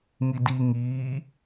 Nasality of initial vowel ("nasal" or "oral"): oral